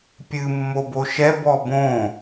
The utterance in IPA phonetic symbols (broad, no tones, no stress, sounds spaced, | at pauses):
pʲ ɨ mː o b o ʃ ɛ b ɔ b õ